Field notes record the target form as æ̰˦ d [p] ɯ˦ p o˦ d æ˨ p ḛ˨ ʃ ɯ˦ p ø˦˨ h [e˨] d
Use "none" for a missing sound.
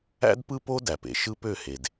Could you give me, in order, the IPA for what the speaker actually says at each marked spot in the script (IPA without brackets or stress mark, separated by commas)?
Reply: p, e˨